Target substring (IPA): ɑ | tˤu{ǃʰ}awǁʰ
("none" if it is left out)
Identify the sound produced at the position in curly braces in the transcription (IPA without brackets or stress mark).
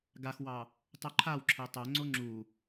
ǃʰ